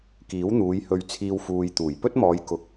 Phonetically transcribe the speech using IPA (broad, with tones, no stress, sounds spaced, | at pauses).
k iː˨˥ w n̪ uː˨˧ j h ɵ˧ ɥ t͡sʰ iː˧ w f uː˨ j t̪ uː˨˩ j p ɵ˥ t̚ m ɔː˨˧ j k ʊ˨ k̚